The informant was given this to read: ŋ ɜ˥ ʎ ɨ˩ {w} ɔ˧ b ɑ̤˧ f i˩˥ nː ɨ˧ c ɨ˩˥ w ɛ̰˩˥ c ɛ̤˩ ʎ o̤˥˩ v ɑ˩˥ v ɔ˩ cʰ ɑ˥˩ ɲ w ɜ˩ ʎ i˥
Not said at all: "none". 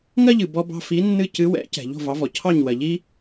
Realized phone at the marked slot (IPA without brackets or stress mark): b